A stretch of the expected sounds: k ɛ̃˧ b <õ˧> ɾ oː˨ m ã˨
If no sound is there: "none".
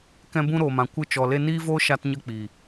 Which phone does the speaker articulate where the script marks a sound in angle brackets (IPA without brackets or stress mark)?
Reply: ũ˧